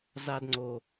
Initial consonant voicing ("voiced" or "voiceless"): voiced